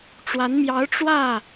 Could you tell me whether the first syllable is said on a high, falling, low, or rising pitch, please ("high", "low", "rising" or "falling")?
rising